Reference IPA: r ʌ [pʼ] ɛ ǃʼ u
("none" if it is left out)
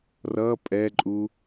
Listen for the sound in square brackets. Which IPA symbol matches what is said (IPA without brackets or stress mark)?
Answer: pʼ